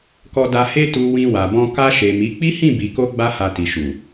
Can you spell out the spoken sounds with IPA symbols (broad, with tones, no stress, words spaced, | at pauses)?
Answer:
kɔ˧da˧he˦ tu˧ wĩ˧wa˨bɔ̃˧ ka˧ʃe˨mi˨˦ k͡pi˦hĩ˦˨bi˨ko˧ ɡ͡ba˦ha˧ ti˨ʃu˨